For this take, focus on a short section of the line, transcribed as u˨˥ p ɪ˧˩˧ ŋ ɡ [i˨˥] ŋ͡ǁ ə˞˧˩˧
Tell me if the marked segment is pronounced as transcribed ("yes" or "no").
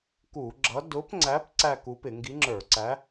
yes